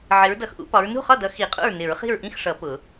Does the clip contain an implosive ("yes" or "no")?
no